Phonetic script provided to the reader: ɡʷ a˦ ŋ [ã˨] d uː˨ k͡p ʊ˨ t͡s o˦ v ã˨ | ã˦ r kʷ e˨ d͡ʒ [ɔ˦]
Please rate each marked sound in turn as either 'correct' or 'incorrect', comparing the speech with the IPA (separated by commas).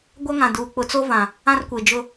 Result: correct, incorrect